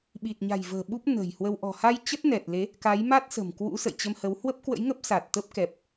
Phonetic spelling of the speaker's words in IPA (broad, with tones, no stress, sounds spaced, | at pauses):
ɓ i˨˩ t̚ ɲ a̤˨˩ j v ə̤ː˨˩ ɓ u˦˥ p̚ n ə̤˨˩ j h w ə˧ w ʔ ɔ̤˨˩ h a˧ j t͡ɕ ə˦˥ t̚ n ɛ˨˩ t̚ l e˨˦ | k a˨˦ j m a˦˥ t̚ s ə̤˨˩ m k w ṵ˧˥ s ə̰˧˨ j t͡ɕ ə˧ m h ə˨˦ w h w ə˦˥ p̚ k w ə̰˧˥ j ŋ ə˦˥ p̚ s a˨˩ t̚ t̪ ə˦˥ p̚ k ɛ˨˩ p̚